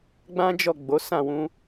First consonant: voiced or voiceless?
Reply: voiced